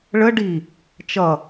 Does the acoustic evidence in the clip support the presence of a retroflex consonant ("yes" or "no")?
yes